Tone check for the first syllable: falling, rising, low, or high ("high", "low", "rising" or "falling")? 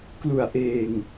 low